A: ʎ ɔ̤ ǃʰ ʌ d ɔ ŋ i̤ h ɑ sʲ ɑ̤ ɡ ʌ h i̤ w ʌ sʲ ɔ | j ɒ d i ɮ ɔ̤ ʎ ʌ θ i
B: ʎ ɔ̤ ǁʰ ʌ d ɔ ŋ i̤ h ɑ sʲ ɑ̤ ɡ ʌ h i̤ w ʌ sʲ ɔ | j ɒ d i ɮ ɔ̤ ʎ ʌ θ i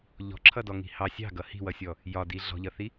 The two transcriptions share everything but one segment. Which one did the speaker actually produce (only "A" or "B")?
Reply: B